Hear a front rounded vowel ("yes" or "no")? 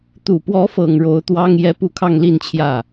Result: no